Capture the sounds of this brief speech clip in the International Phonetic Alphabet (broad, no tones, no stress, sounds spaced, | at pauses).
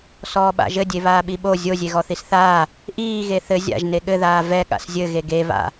s ɔː ɓ a̰ ʒ ɘ dʲ e β aː ɓ i ɓ o zʲ o zʲ e ɣ ɔ θ i s θ aː | ʔ iː ɣ e θ ɘ zʲ a̰ ʒ n e ɠ ɘ ð aː v ɛ ɠ a̰ s zʲ ɘ ɣ e ɡ e β a̰